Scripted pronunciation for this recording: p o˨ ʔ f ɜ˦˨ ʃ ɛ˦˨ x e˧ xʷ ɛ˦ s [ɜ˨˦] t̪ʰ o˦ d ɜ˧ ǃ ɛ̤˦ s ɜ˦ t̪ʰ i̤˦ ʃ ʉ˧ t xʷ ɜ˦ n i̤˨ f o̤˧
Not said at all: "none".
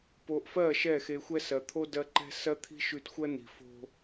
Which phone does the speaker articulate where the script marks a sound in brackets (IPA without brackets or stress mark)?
ɜ˨